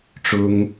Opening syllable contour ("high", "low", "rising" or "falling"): high